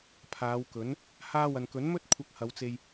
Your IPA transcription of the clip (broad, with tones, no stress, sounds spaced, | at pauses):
pʰ aː˨˧ w k ɵ˨˥ n | h aː˧ w ɐ˨ n k ɵ˨˥ n m ɵ˥ t̚ kʷʰ ɐ˧ k̚ h ɐ˨˧ w t͡s e˧ j